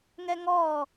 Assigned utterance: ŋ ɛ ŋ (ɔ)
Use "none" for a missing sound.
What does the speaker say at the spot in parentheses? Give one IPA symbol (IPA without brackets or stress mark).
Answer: ɔː